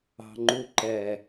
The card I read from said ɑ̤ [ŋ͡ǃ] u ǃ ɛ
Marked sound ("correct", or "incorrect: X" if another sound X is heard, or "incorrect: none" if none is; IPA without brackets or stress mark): correct